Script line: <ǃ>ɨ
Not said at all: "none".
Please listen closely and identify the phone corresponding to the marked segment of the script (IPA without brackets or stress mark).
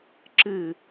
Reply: ǁ